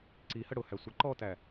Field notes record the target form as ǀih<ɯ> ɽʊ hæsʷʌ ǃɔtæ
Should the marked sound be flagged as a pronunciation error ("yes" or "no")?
yes